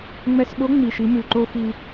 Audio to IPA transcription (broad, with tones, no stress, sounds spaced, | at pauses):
ŋ͡m ɛ˧ s ɓ o˧˥ ŋ͡m i˩ ʃ i˩˧ m ʉ˩ ǃ o˧ x i˧